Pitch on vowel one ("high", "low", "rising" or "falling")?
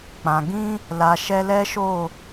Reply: low